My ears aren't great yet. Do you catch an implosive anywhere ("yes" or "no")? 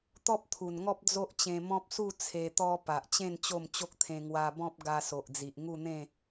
no